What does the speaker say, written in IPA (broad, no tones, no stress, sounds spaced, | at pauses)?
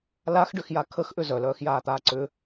l a x ɖ ʏ x j a kʰ ə x ʔ ʏ z œ l œː x j aː t̪ aː ǀ ʏ